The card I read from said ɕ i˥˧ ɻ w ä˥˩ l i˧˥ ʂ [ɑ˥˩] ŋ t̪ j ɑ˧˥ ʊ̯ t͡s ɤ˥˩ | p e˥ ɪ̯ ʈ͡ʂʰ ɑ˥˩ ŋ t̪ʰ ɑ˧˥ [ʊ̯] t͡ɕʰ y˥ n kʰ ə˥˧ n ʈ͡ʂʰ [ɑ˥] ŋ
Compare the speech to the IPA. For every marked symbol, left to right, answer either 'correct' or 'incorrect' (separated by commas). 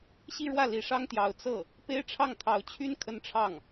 incorrect, correct, incorrect